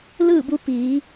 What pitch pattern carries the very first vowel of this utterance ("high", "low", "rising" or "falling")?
falling